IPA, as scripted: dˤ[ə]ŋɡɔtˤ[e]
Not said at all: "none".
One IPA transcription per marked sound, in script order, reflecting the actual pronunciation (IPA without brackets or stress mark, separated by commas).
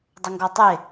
ə, e